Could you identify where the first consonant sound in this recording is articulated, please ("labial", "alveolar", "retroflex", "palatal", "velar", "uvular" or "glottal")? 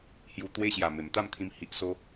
glottal